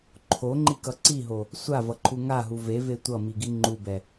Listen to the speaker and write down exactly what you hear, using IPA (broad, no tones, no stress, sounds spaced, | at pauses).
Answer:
ǃʰ o ŋ͡ǃ i k ʌ ǀ i ɦ o | sʷ a v ʌ ǃʰ u ŋ a ɦ u v e v e tʷ ʌ m i ɡ i ŋ͡ǃ u b ɛ